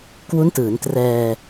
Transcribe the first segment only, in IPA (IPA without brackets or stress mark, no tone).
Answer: k